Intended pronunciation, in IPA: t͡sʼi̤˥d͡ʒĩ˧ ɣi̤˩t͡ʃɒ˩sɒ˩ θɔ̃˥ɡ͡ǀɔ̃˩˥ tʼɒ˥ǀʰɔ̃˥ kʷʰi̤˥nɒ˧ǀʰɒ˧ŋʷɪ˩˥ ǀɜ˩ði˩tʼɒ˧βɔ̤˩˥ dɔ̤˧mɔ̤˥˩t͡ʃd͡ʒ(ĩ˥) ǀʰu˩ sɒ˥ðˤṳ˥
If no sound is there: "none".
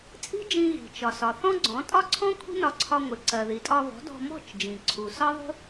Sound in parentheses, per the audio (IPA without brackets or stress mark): ĩ˩